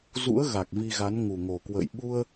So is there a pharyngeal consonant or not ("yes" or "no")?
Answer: no